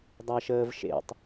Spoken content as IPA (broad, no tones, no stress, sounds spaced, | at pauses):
dˤ a ʃ əː v ʃ ḛ tˤ